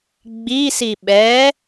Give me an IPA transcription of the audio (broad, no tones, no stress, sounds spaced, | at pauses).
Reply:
ɡ͡b i s i ɓ ɛ